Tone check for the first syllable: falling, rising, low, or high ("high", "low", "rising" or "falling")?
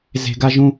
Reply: high